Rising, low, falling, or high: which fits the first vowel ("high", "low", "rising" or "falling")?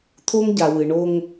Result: high